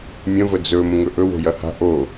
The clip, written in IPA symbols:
mʲ ə̃ v ə d͡z ɵ m ə̃ ŋ ɵ ʔ ɵ w o̤ j ɐ h a̤ ʔ o

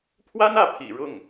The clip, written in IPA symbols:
pʰ w a˥ n ä˥˩ pʰ ḭ˨˩ ɻ ʊ˥˩ ŋ

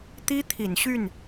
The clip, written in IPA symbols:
t̪ i˦ t̪ʰ i˨˩ n ɕ y˥˨ n

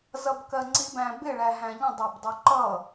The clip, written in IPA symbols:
z ʌ b k ɜ ŋ͡ǀ i b æ̃ b ɪ ɭ æ ɦ æ̃ ʎ ə̃ dˤ ɜ b dˤ u ǃ ʌ

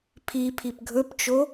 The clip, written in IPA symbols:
pʰ i pʰ i p ɡʱ ɵ p t͡ʃ o

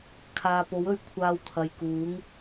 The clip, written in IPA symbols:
kʰ aː˨ p o˨˥ w ɵ˨˥ ɥ kʷʰ aː˧ w t̪ʰ ɐ˨ j k uː˨˥ ŋ

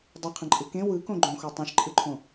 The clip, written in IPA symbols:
dˤ ə qʰ ə̃ ǃʼ ɯ k ẽ w ɯ k õ ɡ͡ǃ õ x o tˤ ẽ ʃ ǃʼ ɯ ǃʰ õ

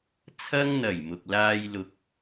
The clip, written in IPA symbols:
t͡sʰ ɐ˧ ŋ n̪ ɐ˨˩ j m ʊ˨ k̚ l aː˥ j l ʊ˥ k̚

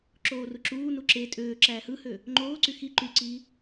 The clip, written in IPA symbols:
ǁ oː r u ǁ uː n u ǁ e tʼ øː ǁ æː h ɯ h ø | ŋ͡ǃ oː ǀ y x i ǃ y ǀ iː

